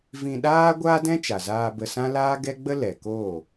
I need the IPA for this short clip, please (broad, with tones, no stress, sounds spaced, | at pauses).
v ĩ˧ ɗ aː˦ ɡʷ aː˦ d ɛ̃˦ t͡ʃ a˨ z aː˧ b ə˧ s ã˦ l aː˦ ɡ ɛ˦ ɡ͡b ə˦ l ɛ˨ k oː˦˨